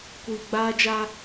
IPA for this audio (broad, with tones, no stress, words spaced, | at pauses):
kʷiː˨ɡ͡baː˦d͡ʒa˦